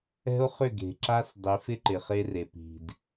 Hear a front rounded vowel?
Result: yes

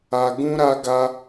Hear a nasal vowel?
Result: yes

